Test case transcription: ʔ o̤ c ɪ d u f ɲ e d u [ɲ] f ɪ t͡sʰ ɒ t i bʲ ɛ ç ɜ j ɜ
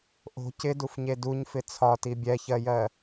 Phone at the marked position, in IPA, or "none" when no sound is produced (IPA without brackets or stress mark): ɲ